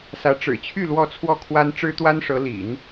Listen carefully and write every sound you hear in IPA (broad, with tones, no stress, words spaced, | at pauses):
sä˧˥ ʈ͡ʂɻ̩˨˩t͡ɕʰy˥˧ lwɔ˥˧t͡sʰwɔ˥˩kʰwa˥n ʈ͡ʂɻ̩˥t̪wa˥nʂɤ˧˥ lḭ˨˩˦n